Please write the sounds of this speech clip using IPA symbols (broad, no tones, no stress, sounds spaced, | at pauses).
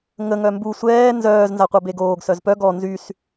ŋ ə ŋ œ m b u sʷ ɛː n z œː z n z a qʷ a b e ɡ oː ɡ s œ z p œ ɡ ɔ n z y s